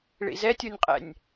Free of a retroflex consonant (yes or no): no